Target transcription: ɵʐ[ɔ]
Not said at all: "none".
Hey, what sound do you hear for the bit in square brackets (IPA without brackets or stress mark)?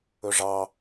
ɑ